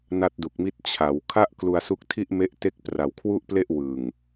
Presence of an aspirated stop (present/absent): present